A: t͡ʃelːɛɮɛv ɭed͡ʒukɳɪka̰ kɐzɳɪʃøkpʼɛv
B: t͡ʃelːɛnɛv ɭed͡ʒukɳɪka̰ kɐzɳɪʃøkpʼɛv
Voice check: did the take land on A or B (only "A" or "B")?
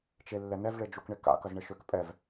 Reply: B